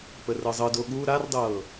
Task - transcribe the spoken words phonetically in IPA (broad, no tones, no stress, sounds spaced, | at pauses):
p ə r ɤ zˤ ɤ d o ɠ u ɾ a r dˤ ɤː